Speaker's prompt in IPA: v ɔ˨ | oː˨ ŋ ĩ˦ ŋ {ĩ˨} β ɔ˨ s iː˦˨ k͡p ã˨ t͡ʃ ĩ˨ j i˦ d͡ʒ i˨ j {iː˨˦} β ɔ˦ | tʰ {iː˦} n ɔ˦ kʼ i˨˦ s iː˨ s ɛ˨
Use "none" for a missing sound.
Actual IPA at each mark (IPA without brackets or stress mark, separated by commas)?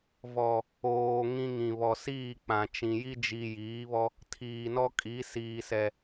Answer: ĩ˨, iː˨˦, iː˨